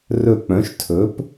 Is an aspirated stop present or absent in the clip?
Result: present